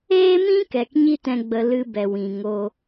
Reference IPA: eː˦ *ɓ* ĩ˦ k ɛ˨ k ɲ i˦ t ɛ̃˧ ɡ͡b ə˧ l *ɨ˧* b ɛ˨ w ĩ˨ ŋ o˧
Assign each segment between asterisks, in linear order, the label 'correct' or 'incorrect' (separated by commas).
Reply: incorrect, correct